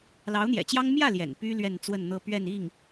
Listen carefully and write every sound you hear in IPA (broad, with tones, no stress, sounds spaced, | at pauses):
l ɑ˧˥ ʊ̯ n̪ j ɛ̰˨˩ t͡ɕ j ɑ˥ ŋ m j ä˥˩ l j ɛ̰˨˩ n p y˥ l ɥ ɛ˥˧ n t͡s w ə˥˧ n n̪ ɤ˥˧ p ɥ ɛ˥˧ n i˥˩ ŋ